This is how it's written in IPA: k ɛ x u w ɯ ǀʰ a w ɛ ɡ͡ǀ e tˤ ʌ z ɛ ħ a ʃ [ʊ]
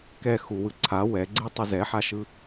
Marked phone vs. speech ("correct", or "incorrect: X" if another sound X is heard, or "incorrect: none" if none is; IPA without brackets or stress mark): incorrect: ɯ